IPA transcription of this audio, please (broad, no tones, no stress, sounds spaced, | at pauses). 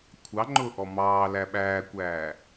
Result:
kʷʰ ɑ ŋ͡ǃ ʊː ʔ ɔ m ɑː l æ ɓ æː kʷ æː